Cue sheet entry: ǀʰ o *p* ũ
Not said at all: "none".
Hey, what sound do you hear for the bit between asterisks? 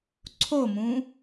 m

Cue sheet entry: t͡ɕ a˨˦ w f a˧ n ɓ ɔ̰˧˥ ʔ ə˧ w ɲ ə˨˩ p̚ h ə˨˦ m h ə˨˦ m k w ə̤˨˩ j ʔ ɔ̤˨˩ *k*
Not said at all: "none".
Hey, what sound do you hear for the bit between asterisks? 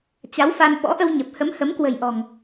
ŋ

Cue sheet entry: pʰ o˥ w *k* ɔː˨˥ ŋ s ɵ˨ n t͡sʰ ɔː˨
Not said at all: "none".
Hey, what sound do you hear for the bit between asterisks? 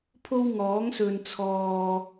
ŋ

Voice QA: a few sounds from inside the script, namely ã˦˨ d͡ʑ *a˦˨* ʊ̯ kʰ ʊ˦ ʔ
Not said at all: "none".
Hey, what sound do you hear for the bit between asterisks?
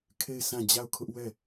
a˦˨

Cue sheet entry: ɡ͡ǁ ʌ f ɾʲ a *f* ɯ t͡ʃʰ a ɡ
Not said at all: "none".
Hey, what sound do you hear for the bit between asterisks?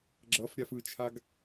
f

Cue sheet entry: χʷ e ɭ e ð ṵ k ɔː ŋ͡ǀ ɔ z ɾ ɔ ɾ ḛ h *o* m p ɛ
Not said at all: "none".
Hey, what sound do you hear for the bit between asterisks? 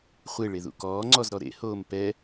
oː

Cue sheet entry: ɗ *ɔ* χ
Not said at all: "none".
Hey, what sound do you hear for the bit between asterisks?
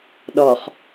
ɔ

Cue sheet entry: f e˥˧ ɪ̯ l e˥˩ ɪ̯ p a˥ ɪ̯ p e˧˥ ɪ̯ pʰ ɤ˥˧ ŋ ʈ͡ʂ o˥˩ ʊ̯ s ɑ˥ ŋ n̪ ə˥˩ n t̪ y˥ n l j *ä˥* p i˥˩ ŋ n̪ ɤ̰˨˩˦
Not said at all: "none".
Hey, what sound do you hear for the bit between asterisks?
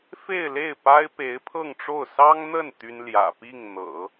ä̰˨˩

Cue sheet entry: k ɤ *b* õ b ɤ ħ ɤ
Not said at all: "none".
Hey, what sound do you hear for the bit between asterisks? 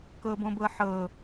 b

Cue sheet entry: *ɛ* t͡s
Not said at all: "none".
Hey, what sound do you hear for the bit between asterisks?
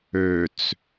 ø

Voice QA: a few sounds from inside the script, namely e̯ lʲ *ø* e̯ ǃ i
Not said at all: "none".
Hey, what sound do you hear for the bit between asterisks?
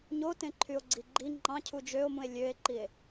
ø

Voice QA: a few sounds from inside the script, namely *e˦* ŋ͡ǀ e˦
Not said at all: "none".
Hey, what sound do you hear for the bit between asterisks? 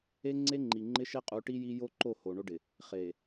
e˦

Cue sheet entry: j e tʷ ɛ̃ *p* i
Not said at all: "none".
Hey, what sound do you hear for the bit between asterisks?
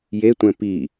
p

